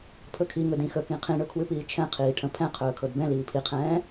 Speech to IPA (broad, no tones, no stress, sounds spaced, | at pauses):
pʰ ɵ kʰ i ŋ ɵ d ĩ x ə k ĩ qʰ ĩ ɳ ɵ kʰ w ʉ p iː t͡ʃʰ ɛ̃ qʰ iː ʈʰ ə̃ pʰ ɛ̃ qʰ ɵː kʰ ɤ d b ɛ̃ l iː pʰ i qʰ ɛ̃ː